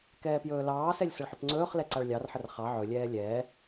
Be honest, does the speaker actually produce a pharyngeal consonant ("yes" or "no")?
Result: yes